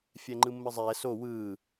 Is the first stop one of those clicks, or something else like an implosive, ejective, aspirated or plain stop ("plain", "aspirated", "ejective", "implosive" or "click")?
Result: click